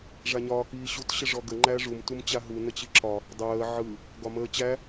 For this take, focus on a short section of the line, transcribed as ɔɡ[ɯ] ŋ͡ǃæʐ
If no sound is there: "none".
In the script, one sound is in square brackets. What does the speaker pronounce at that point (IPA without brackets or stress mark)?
ə